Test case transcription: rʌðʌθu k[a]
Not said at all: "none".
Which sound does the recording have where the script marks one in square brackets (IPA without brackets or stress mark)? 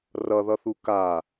a